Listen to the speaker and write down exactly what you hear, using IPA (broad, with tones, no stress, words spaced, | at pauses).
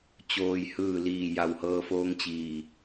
t͡ɕoː˩j hɯː˧˩liː˧˩ ja˧˩whɤː˧foː˧˥ŋt͡ɕiː˧˩